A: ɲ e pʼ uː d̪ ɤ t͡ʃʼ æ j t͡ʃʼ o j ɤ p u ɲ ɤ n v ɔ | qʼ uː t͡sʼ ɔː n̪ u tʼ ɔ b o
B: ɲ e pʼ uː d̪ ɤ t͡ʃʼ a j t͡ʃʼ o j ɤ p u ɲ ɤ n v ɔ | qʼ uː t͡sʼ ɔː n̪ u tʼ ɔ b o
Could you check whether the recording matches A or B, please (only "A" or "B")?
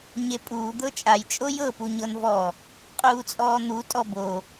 B